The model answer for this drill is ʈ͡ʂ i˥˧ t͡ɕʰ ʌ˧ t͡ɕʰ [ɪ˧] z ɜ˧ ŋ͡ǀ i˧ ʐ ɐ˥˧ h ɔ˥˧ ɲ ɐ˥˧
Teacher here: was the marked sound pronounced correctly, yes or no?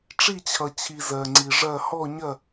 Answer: no